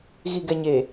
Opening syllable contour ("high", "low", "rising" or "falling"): low